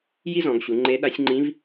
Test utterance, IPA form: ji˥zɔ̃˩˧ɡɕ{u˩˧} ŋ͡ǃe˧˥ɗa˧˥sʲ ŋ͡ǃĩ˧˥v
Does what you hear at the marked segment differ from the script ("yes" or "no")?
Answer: no